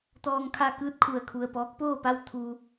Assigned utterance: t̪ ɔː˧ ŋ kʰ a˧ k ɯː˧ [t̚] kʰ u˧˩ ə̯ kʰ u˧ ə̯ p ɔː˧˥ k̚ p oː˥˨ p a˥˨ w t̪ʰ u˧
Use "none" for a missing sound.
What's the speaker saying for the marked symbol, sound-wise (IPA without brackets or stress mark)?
t̚